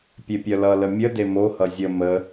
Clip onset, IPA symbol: pʲ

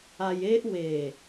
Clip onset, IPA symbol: a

